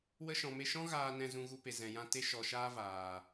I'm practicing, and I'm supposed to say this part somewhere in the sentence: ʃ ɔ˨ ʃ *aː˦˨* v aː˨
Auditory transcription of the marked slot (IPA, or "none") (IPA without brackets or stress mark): aː˧